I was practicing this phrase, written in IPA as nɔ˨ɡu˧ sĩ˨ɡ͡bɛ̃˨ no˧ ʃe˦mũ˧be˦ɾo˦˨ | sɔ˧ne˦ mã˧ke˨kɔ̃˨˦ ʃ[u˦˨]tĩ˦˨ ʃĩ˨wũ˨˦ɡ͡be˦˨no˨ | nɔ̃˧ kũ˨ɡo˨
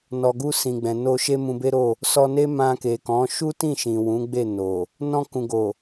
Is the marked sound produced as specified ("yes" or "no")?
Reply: no